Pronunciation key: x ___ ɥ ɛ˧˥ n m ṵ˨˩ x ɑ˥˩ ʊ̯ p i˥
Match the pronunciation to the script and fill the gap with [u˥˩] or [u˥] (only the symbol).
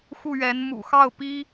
u˥˩